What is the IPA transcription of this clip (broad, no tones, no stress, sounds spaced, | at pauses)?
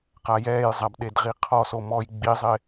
q a j ɛː j zˤ a b ɗ e d ʁ i qʰ ɔ s o m ɔː j ɡ͡b i zˤ ɪ